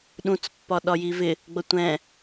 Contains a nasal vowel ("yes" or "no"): yes